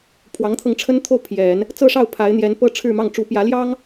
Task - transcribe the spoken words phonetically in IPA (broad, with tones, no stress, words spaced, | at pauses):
pʰwɑ˧˥ŋt̪ʰɤ˧ŋʈ͡ʂʰə˥nt̪ʰo˥˩ʊ̯ pʰjɛ˨˩˦n | t͡sɤ˥˧ʂɑ˥˩ʊ̯ pʰa˧˥ɪ̯n̪jɛ˧˥n pɤ˥ ʈ͡ʂʰɻ̩˥˧mɑ˥˩ŋ ʈ͡ʂu˧˥pjä˧˥ ljɑ˥ŋ